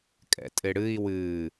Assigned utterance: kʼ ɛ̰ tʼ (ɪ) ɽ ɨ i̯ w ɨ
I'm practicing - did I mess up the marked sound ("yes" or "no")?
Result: no